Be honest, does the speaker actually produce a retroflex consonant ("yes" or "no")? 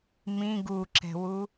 no